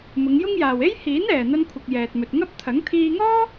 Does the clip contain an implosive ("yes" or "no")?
no